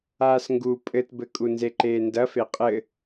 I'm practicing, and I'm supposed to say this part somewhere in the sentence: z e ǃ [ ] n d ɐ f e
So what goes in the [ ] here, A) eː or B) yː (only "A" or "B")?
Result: A